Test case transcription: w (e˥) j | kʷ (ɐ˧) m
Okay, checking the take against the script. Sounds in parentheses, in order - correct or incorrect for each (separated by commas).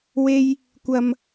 correct, incorrect